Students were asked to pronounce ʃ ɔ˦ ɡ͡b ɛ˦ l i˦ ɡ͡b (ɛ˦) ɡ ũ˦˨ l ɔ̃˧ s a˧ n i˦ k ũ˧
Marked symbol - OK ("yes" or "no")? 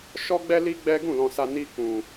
yes